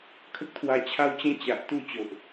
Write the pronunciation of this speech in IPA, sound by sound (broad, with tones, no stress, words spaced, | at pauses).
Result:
kʰə˦k̚t̪ʰwa˧t͡ɕʰa˦wt͡ɕẽ˦ t͡ɕa˨ʔt̪u˥˧ t͡ɕo˨ʔ